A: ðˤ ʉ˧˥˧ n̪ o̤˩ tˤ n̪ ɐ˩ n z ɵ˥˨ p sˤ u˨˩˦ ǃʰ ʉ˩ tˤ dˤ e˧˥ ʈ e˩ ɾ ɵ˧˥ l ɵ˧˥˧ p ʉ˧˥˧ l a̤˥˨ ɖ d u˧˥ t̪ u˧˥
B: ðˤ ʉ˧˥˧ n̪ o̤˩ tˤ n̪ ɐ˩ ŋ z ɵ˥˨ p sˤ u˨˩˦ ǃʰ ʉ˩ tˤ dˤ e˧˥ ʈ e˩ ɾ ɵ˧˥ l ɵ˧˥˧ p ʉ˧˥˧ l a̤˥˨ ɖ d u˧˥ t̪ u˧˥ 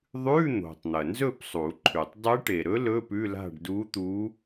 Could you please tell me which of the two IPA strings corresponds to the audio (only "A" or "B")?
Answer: A